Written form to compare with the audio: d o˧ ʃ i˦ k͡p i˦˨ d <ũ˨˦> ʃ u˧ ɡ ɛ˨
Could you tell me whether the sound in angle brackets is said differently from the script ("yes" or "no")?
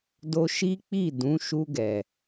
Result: no